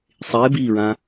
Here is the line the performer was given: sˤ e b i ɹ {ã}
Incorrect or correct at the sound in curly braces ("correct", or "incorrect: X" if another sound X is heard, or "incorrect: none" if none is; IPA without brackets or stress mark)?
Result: correct